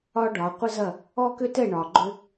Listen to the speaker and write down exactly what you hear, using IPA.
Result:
ɒ˥ ɖ ɒ˨˦ qʷ ə˥ z ɐ˥˨ | ɔ˥ k ʏ˥ t ɛ˥˨ ɳ ɒ˨ ɡ͡ǃ ʏ˥

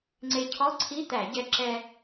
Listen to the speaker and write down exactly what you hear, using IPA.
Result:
ŋ͡ǀ e˧ cʰ ɔ˧˥˧ ǀʰ i˧˥˧ t̪ æ˧˩˧ ɟ ɛ˧ ǁ ɛ˧

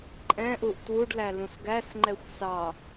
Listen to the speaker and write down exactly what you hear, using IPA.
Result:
ǃʼ ɛ̃ ʔ u ʔ t w u ɖ l æ l ũ s ɡ æ s ŋ͡ǃ ɛ xʷ s ɑ

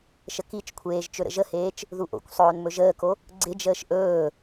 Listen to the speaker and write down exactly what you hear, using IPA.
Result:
ʃ ə k i t͡ʃ kʷʰ eː ʒ t͡ʃ ɵ ɾ ə̰ ʒ ə h eː t͡ʃ | ð u ʔ o̰ kʷ sˤ ɵː n m ɵ ʒ əː k o | ɡ͡ǀ ɪ d͡ʒ əː ʃ ʔ ɵː

